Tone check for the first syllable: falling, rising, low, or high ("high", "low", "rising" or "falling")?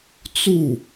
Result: falling